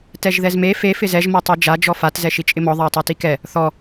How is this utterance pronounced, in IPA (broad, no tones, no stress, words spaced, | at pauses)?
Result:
tɛʒðɛzme fe fɪzɛʒ mɔtˤid͡ʒa d͡ʒɔfat zɛʃit͡ʃʼɪmɔ ðˤɪwtˤetikɛ | θɔ